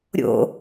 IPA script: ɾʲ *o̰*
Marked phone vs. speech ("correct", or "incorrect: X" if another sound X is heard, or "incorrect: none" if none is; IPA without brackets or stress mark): correct